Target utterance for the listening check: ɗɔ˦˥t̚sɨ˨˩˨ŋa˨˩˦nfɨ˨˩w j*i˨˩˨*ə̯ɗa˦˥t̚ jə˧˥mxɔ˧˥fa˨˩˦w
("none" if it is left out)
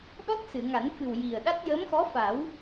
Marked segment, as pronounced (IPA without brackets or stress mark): i˨˩